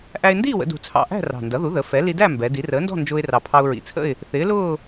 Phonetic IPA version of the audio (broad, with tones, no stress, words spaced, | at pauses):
ʔæ˧ɪ̯ndiː˥˨wə̰˩˧ dṳ˨˩t͡sʰɑ̰˨˩ ʔæ̤˥˨ rɑ̤˨˩ndʌ˩˥ðu˩˥ ðə˩˧ fɛ˩˥ li˧dæ˥˨ mbɛ˩˧ di˩˧rəː˩˥ndɔ̤˥˨ nd͡ʒʊː˧ɪ̯rɑ˨˩pʰɑ˧ʊ̯ ɹḭ˨˩t͡sʰə̰˥˨ɪ̯ | θɪː˩˥lʊː˥˨